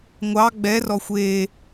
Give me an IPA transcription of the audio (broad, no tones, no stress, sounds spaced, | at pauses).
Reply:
ŋʷ ɑ ɡ͡b ɛ r ɔ xʷ e